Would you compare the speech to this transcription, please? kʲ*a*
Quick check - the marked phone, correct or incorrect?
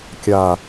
correct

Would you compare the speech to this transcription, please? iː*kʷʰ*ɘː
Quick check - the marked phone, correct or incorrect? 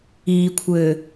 correct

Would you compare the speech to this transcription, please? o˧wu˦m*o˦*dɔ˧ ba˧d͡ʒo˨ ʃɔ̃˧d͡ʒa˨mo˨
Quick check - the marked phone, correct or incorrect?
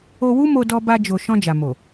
incorrect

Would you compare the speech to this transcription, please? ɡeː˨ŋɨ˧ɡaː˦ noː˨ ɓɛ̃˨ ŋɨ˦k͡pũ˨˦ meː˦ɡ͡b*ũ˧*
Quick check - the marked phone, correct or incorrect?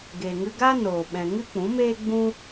incorrect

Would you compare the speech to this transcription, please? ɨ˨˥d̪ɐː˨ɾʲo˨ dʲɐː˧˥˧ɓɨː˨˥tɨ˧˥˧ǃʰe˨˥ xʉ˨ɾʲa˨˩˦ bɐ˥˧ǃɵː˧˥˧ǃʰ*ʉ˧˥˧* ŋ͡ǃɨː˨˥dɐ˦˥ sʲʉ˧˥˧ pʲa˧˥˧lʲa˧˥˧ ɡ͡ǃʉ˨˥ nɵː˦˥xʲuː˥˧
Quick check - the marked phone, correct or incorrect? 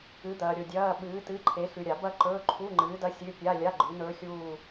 incorrect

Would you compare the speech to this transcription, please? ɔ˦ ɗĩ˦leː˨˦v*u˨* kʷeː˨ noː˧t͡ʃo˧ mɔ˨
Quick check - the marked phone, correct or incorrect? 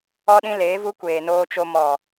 incorrect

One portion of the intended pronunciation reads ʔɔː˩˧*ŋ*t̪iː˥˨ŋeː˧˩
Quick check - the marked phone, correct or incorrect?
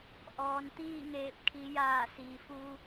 incorrect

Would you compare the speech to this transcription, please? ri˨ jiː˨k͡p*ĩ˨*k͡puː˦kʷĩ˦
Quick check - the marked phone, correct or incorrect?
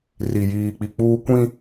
incorrect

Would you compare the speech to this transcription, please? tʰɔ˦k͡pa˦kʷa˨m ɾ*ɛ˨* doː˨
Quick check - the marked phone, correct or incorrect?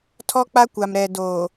correct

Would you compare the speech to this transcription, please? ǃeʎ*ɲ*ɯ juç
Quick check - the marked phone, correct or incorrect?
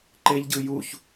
incorrect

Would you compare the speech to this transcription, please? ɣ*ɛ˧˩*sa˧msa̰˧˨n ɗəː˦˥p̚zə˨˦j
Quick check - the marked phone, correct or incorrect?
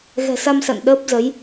incorrect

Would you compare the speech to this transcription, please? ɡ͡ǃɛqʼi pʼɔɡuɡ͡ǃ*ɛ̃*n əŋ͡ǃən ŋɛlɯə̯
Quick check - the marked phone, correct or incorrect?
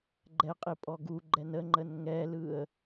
incorrect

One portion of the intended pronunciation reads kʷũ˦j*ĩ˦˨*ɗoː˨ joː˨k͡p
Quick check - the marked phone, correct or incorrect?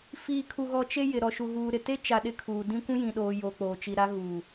incorrect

